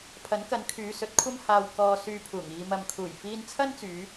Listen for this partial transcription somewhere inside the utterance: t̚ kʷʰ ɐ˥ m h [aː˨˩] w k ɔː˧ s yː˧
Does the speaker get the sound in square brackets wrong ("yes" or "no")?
yes